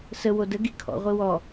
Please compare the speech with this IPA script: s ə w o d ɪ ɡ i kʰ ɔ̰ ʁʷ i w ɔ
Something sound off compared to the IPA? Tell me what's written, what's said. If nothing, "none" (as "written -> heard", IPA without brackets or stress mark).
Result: ɪ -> ə